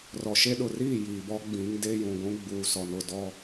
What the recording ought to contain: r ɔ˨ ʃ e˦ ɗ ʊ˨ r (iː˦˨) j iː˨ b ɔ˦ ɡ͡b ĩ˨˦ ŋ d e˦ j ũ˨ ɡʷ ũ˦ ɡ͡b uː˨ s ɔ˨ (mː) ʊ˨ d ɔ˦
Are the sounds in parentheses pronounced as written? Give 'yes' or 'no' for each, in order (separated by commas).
yes, no